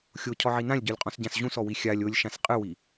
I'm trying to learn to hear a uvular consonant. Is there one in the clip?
yes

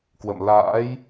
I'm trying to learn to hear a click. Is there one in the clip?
no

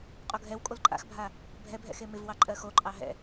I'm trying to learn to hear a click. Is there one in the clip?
yes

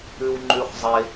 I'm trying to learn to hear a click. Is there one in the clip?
yes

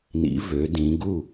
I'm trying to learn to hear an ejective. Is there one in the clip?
no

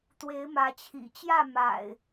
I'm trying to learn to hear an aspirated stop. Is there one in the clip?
yes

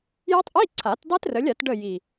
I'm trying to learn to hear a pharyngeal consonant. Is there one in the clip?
no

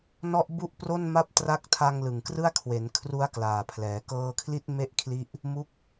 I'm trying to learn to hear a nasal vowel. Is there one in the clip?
no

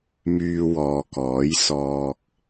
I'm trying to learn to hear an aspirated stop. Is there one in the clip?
no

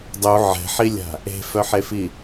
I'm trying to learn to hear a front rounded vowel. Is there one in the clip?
yes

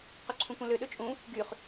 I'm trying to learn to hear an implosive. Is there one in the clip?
yes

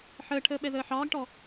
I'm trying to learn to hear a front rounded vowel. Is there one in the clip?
no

